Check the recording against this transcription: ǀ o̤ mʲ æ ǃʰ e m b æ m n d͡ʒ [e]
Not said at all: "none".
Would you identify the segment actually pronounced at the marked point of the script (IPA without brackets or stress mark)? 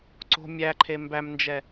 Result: ɛ